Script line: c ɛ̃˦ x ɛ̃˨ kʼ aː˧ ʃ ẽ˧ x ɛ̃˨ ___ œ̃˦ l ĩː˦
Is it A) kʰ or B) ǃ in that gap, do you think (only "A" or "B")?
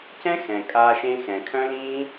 A